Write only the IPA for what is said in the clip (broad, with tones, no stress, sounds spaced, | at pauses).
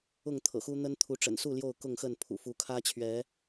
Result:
ʊ˥˨ ŋ t̪ʰ ɤ̰˨˩ x u˦ n̪ ə˦ n t̪ʰ u˨˦ ʈ͡ʂ ə̰˨˩ n s u˥˨ l j o˥˨ ʊ̯ k ʊ˥˨ ŋ x ə˥˨ n pʰ ṵ˨˩ f u˨˦ kʰ ä˦ t͡ɕʰ ɥ ɛ˨˦